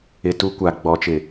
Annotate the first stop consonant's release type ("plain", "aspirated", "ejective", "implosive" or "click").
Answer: plain